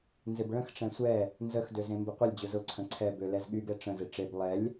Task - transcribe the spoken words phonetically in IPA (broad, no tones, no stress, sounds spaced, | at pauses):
n z ɪ b ɭ ə̃ x ʈ͡ʂ ɛ̃ sʷ ɛ | n z ə x d ø z ẽ m b ɪ qʷ ɪ lʲ d͡ʑ ʊ z ʊ ǀʰ ə̃ ǀʰ ɛ b ø l ɛ z ɠ y ɡ ɛ ʈ͡ʂ ə̃ z ɪ ʈ͡ʂ e b lˠ ɛ lʲ